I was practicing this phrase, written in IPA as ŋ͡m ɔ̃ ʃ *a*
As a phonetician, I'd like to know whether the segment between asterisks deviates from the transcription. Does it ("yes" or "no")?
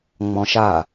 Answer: no